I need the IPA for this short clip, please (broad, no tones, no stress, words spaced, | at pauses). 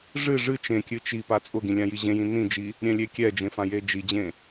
ʐɨ ʐɨ t͡ʃẽkʲɨ t͡ʃi pat͡sʼʊɡĩ lʲãjiʑẽjĩ nĩd͡ʒi | ɾʲɛ̃lʲekʲɛd͡ʒẽ fãjed͡ʒid͡ʑẽ